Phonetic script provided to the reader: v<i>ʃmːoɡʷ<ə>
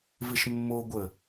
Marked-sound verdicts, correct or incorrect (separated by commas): incorrect, correct